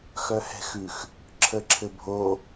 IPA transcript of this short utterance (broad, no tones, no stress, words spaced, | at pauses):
xœhɛ̤xʉx | ǁʰəǁʰɘbʱo